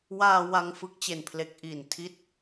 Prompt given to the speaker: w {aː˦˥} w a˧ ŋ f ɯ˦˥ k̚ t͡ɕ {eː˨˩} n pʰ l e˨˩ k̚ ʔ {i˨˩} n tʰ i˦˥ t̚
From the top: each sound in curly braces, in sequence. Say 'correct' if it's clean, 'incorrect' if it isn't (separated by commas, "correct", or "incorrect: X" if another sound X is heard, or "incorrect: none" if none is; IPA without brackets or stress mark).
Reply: incorrect: aː˧, incorrect: e˨˩, correct